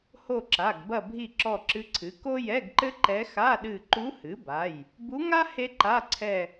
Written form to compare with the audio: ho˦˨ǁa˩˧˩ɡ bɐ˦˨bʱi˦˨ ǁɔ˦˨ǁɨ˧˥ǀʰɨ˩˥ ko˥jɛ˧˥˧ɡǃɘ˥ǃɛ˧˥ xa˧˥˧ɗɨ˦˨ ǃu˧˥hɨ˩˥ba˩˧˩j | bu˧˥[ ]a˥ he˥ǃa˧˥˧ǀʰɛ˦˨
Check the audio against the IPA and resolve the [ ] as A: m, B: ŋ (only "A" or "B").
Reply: B